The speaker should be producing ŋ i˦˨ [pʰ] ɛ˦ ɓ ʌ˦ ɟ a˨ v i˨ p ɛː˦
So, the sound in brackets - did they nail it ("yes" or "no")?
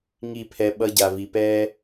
yes